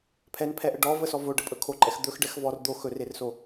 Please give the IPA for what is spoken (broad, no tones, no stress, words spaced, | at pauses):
pʰɛnpʰɛʔə ɖɔvəsɔ voɖəpʼɵ kʰoǃʼɛx d̪ɵxɖɛx vɔr d̪o xɵrerso